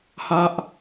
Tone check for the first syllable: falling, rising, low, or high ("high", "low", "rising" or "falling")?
high